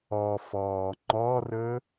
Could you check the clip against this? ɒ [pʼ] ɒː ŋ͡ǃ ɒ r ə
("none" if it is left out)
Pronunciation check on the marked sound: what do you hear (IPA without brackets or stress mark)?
f